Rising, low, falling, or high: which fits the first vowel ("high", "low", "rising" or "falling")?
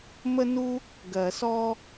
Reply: high